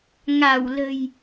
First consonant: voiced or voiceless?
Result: voiced